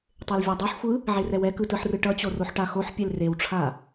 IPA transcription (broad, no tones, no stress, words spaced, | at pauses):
tˤelvʲadˤɛħxʷɯ | ʕerɛwɛkɯ tɯħrɯʈʌt͡ɕo roħʈaxoħpʲel rewʈ͡ʂʰa